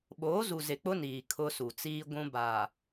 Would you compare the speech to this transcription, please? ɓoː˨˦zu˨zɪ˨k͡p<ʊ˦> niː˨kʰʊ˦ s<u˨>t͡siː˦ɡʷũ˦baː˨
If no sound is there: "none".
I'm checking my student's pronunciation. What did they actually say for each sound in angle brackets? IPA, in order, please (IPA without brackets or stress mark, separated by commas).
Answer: ʊ˦, u˨